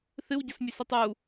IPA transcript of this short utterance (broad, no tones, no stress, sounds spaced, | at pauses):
θ ɨ w ɟ ɐ s mʲ ʉ s e tˤ u